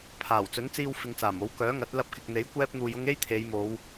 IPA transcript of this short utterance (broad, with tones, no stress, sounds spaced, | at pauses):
pʰ aː˨˩ w t͡s ɵ˨˥ n t͡s iː˧ w f ɪ˨˧ ŋ t͡s aː˨˩ m o˨˥ w k œː˨˥ ŋ ɐ˨˥ t̚ l ɐ˧ p̚ k ɪ˨ k̚ n̪ e˨˥ j kʷ ɛː˥ p̚ n̪ uː˧ j ʊ˥ ŋ e˥ j t̪ʰ e˨˧ j m o˨˧ w